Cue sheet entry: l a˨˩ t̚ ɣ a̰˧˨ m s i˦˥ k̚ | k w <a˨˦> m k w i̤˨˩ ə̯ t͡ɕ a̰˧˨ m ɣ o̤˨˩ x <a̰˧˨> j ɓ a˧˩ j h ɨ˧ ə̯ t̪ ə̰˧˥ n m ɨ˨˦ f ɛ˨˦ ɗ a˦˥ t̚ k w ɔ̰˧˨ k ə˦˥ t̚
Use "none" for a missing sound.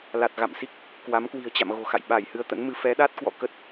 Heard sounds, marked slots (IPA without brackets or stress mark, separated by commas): a˨˦, a̰˧˨